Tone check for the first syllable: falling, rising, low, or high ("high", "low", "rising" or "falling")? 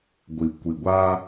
low